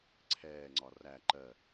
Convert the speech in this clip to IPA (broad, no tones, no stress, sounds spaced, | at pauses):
ǀʰ ɛː ŋ͡ǀ ɒ r æ ǃ ɜ